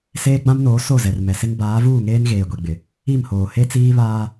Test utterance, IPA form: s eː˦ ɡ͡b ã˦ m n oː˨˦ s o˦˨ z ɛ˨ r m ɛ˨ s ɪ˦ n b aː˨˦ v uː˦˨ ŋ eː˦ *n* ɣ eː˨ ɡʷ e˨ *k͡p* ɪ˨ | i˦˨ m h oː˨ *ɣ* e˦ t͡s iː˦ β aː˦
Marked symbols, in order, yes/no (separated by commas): yes, no, no